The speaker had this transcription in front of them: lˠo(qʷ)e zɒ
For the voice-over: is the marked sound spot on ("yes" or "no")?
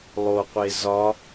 yes